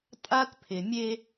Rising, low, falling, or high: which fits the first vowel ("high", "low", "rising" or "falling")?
high